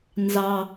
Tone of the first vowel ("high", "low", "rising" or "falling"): low